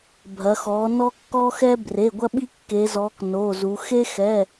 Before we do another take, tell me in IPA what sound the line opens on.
bʱ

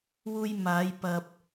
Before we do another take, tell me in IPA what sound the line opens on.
w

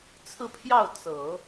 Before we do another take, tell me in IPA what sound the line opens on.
t͡sʰ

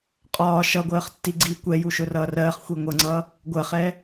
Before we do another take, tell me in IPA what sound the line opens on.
qʼ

